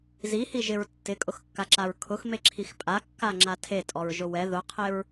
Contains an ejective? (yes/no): yes